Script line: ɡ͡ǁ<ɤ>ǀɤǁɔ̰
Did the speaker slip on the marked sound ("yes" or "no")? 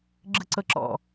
yes